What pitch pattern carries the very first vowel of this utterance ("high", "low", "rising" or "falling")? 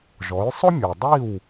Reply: rising